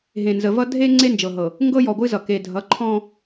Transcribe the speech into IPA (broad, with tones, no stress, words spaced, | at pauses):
ɦẽ˨ nzə˨vʌ˦ dʱe˦ ŋ͡ǀe˦nd͡ʒɤ˨ɦɤ˨ | ŋɡɤ˦jɔ˨ɡʷɨ˦zʌ˨ ke˨dʱʌ˨˦ ǃʰɔ̃˦